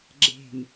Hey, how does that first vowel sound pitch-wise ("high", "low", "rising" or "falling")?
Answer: low